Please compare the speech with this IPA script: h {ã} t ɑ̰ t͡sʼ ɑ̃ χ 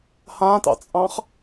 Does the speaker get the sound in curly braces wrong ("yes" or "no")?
no